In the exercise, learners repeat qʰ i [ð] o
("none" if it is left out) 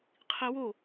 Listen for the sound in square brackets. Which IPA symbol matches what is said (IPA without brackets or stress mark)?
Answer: w